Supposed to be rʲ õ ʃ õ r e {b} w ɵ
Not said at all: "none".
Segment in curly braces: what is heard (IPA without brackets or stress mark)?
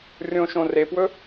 p